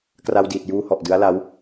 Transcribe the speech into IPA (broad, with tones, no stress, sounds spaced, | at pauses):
k r a˧ w d iː˨˩ t̚ j uː˧ h ɔ˨˩ ʔ d ɯ˦˥ a̯ l a˦˥ w